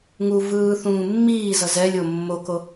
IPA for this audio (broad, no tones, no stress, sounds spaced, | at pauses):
ŋ u v ɯː θ ũː mː iː z ʌ z ɛ lʲ o mː o k o